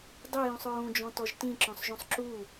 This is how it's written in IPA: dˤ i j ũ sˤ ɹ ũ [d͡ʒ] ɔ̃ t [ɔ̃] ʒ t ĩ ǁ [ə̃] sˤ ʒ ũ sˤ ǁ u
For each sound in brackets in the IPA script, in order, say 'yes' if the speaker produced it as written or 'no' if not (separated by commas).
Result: yes, no, no